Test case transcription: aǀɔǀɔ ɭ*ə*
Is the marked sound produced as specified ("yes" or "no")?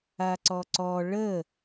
yes